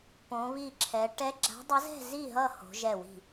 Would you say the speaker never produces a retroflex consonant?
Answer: no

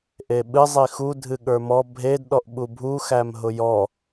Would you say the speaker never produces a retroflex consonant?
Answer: yes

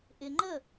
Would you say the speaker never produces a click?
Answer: no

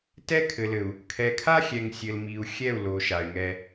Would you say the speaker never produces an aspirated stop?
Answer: no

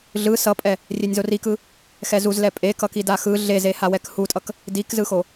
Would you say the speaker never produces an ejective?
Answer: no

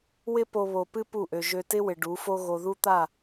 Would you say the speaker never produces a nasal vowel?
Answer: yes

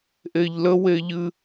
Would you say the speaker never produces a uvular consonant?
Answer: yes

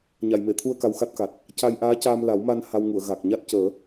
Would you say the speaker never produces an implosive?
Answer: yes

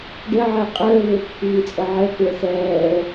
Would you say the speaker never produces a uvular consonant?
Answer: no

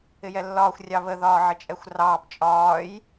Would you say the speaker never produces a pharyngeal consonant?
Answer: no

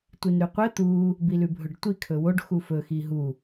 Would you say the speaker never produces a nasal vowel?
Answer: yes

